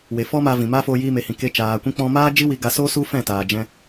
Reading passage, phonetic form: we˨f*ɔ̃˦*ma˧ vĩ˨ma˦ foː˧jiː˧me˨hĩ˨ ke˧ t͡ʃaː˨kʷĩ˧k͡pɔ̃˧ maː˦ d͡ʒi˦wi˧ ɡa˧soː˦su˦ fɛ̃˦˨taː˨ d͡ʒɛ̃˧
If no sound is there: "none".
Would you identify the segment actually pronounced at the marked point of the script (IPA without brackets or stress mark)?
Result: ɔ˦